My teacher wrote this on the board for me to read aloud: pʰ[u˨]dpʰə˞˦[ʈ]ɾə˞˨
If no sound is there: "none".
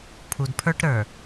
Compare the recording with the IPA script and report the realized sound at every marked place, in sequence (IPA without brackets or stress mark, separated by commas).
u˨, ʈ